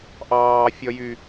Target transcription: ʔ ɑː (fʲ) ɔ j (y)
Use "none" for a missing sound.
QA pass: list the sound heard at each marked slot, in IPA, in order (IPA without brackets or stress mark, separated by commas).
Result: fʲ, y